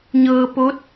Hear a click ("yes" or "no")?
no